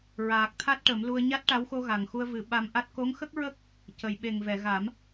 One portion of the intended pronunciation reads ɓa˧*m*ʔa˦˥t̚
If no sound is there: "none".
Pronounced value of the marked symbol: m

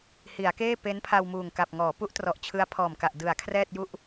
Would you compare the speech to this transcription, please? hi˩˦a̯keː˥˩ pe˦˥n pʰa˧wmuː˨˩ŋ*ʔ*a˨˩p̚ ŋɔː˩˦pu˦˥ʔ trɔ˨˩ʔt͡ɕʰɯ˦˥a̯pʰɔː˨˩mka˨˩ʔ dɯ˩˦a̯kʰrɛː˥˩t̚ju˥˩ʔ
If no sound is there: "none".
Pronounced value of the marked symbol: k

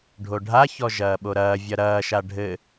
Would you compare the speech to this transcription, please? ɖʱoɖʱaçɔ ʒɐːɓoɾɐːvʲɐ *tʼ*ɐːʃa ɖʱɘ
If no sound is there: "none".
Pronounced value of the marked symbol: ɾ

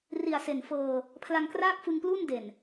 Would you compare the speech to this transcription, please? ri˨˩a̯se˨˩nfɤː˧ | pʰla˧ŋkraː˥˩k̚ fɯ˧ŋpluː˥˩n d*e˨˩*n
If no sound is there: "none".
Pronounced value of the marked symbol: e˨˩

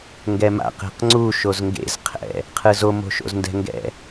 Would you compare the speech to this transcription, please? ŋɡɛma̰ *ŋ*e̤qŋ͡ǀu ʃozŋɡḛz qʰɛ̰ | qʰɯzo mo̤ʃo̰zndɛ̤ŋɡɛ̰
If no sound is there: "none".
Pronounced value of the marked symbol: q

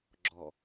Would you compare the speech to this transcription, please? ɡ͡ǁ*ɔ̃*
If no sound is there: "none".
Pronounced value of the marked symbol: ɔ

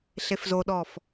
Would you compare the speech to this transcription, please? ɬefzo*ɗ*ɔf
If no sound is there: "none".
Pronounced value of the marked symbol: ɗ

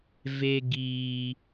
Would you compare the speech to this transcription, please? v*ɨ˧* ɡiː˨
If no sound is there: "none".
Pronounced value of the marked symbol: e˧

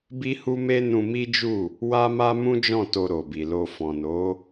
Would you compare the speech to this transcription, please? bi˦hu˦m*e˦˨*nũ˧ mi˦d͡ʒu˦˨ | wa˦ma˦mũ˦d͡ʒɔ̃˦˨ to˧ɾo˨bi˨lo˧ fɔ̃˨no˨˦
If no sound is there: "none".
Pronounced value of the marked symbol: e˦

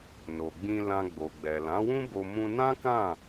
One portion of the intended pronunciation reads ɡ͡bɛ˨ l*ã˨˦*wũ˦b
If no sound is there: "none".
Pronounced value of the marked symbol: ã˨˦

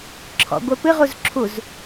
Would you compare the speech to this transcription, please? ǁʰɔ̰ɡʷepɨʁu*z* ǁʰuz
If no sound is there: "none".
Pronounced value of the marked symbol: z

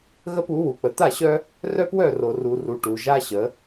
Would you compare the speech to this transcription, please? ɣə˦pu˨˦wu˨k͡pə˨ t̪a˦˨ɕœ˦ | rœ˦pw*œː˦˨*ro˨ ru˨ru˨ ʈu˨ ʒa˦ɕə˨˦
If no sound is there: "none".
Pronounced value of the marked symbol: œ˦˨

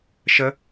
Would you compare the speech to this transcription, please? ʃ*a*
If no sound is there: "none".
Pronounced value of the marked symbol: ə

